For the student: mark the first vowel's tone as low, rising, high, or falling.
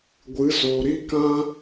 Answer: rising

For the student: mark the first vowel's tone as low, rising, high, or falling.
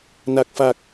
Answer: low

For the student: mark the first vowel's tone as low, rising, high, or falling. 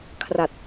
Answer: low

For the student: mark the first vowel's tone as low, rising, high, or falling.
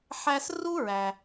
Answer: high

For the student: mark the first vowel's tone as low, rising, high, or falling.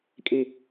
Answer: falling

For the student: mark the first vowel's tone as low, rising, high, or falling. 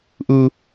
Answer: high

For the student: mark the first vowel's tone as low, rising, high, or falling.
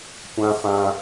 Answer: high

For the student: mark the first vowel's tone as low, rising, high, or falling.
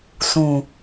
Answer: low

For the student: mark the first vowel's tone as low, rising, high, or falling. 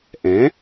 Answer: rising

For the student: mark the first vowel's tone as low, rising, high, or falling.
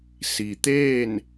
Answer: low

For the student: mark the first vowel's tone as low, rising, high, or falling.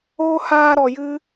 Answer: high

